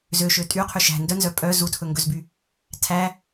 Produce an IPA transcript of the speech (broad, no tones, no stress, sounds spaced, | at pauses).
z ø ʃ ø tʼ y qʰ y ʃ æ̤ n d œ n z œ pʼ œ z u tʰ ɵ ŋ ɡ ɵ z b y | tʰ æ